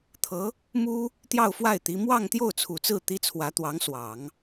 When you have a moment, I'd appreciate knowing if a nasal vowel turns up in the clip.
no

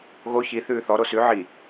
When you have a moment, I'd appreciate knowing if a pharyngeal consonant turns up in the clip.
yes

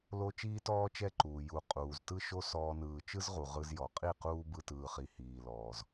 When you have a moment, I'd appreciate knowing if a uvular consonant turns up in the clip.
yes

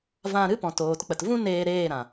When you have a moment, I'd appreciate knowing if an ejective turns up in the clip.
no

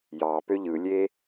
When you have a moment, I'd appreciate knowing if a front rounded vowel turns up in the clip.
yes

